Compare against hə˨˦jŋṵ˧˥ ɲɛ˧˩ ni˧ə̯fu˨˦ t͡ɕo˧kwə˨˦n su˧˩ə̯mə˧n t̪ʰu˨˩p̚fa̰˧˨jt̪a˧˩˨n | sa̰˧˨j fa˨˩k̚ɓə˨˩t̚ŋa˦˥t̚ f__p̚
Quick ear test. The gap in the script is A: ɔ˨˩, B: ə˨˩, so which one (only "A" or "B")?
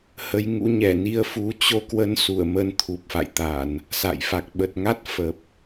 B